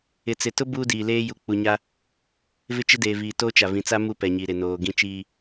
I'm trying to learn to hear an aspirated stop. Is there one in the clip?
no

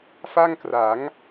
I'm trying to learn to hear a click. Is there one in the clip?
no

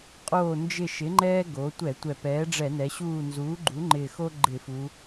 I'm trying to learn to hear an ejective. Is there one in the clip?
yes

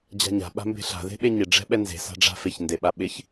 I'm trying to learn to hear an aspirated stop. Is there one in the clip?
no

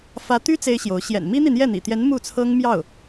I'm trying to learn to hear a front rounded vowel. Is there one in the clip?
yes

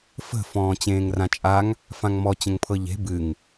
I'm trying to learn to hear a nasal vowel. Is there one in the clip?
yes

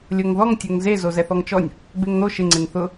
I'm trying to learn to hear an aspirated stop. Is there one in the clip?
no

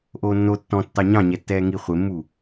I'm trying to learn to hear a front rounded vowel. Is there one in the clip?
no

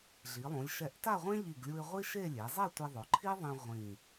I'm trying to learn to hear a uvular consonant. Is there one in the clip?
yes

